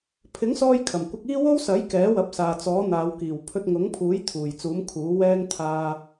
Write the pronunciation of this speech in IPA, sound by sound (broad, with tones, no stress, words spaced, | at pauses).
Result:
pʰɪ˨˥ŋsɔː˧j kʰɐ˨˩mkʷɐ˧k̚iː˥ wo˥wsɐ˨˥j kɛː˨˥wɐ˨˥p̚ saː˨t͡sɔː˨˥n̪aː˨˧w kiː˨˩wpʰɵ˧t̚ ŋʊ˨˥ŋpʰuː˨˥j t̪ʰuː˨˩jt͡suː˨˥mkʰuː˨˥wɛː˥ŋ t̪ʰaː˧